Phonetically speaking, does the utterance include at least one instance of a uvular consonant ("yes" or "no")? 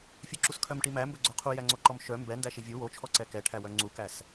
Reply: yes